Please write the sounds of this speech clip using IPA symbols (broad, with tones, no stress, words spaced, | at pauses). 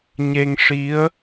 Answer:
ɲe˧ŋʂi˧˥ə̯